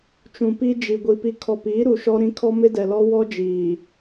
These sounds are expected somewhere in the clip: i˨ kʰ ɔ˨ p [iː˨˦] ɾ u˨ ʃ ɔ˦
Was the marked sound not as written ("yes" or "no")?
no